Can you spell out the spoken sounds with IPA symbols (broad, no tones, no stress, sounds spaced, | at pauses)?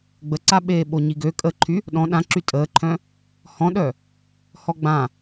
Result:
ɡ͡b ə ǀ a ɓ eː ɓ o ɲ i ɡ ø kʼ ə ǃʰ y | ɗ ɔ̃ ɗ ã ǁ y tʼ əː ǃʰ œ̃ | h ɔ̃ ɗ œ | h ɔ ɡ͡b ã